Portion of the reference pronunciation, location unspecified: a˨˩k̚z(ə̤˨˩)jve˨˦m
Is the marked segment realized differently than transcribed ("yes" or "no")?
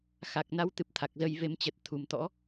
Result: yes